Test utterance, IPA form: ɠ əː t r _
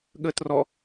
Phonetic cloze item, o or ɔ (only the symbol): ɔ